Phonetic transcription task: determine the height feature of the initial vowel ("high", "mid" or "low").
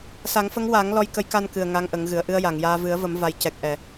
low